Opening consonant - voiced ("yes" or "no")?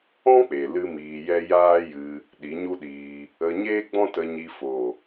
no